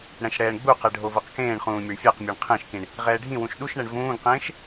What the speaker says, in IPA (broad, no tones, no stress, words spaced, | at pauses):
ɽɛ̃ʃɽɛːɳɡ͡buqɛ ɖʱovɤqkẽːɳχũː mʲoɳfʲaqmʲeɳ qʰẽʃkĩɳ | ʁɛːɖʱĩwũʃ ɗuʃɳɛɳ vũːɡqẽːʃ